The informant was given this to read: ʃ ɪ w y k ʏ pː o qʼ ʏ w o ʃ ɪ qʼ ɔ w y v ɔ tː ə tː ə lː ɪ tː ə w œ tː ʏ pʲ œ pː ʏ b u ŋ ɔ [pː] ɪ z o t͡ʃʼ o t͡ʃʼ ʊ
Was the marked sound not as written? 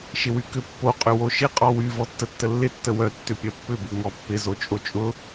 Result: no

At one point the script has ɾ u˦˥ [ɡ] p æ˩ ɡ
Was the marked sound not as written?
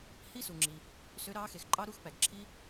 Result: yes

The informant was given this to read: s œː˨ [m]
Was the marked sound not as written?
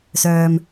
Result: no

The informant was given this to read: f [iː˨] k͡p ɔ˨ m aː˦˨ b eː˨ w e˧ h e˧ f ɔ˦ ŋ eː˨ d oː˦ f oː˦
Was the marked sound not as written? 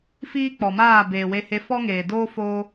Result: yes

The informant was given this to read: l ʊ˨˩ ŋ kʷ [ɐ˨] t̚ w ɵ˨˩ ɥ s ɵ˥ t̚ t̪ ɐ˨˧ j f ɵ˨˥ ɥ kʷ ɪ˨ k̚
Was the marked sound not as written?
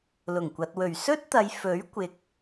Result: no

